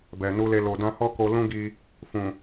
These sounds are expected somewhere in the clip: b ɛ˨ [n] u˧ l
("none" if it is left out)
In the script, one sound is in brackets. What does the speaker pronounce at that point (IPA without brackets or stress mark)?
n